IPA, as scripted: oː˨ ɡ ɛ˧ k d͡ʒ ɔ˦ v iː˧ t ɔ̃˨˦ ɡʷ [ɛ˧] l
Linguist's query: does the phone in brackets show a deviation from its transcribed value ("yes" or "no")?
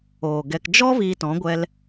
no